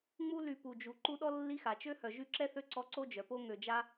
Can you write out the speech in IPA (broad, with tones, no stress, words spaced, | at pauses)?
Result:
ŋ͡mu˦ ly˨pu˩d͡ʒu˩ ǃu˦ɗɔ˥ lːi˦xa˩t͡ʃø˥ hœ˩ʒy˦ǁɛ˥θø˦ ǀɔ˦ǀo˥d͡ʒœ˩po˥ ŋø˨d͡ʒa˥